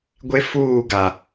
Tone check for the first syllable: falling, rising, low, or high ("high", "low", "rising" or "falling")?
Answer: high